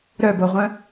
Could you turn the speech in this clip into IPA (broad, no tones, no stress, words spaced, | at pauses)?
ɾœboʁʷœ̃